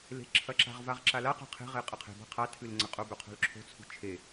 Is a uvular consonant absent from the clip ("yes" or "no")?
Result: no